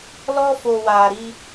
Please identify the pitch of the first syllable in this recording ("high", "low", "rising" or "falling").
high